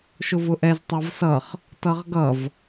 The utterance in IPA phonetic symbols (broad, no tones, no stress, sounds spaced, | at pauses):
ʃ ʊ v ʊ ʔ ɛ z tˤ a v s ʌ χ | t ʌ ʁ ɡ ʌ v